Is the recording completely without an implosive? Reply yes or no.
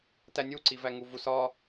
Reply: yes